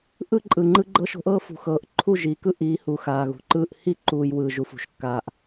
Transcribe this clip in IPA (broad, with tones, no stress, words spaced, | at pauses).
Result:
ʔɯ˦ǃʼɯ˨ŋ͡ǃɯ˦ɡ͡ǃɤ˦ʃ o̤˦ʔɤː˦fṳ˨xɤː˨ʔ ǃʰu˦˨ʒiː˨kɯ˦ ʔiː˨˦ hu˨xaː˨ɣṳ˨ǃɯː˦ʔ hi˦ǃuː˨j wɯː˨ ʒu˦fṳ˨˦ʃkːaː˦ʔ